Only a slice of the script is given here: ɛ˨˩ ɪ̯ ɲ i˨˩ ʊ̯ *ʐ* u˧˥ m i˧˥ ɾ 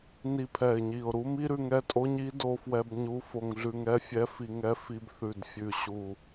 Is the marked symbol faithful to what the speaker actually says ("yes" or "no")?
no